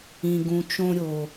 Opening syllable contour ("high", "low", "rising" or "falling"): low